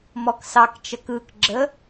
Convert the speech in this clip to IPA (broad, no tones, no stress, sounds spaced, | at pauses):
m ɔ k s ɑ k t͡ʃ ə k ɯ k ɡ͡ǁ ə